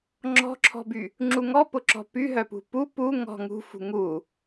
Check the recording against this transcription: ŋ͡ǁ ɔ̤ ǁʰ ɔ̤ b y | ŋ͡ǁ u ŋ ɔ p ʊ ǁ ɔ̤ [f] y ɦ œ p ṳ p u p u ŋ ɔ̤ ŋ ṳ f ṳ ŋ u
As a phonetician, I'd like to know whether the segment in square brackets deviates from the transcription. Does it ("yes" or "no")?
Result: yes